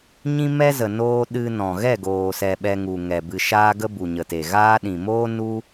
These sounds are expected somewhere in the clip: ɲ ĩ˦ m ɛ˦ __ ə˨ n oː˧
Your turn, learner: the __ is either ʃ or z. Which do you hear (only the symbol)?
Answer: z